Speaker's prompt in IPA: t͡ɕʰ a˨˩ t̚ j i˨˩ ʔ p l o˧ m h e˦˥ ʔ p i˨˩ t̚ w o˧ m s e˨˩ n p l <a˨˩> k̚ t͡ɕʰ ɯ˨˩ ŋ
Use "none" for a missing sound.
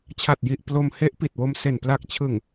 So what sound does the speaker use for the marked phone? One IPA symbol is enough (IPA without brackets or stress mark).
a˨˩